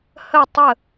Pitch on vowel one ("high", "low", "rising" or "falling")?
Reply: falling